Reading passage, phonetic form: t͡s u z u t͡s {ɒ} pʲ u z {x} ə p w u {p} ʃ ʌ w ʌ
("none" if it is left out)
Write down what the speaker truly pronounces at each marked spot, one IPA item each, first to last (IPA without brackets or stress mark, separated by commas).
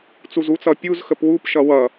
ʌ, x, p